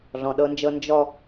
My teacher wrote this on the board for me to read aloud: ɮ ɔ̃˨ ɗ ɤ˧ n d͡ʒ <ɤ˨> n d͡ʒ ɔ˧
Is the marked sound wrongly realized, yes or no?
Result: yes